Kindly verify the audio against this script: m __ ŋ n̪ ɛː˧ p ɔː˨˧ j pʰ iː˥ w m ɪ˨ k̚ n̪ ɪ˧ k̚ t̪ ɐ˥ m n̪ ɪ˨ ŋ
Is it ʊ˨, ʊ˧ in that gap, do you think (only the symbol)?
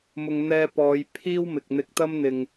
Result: ʊ˨